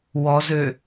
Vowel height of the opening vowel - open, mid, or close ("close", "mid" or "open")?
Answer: mid